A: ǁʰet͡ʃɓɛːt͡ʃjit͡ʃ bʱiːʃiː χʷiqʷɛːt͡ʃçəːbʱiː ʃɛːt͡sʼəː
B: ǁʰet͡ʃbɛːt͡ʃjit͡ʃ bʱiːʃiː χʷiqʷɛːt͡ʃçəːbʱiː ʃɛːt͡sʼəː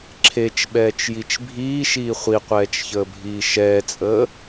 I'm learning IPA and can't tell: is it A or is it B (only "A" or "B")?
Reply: A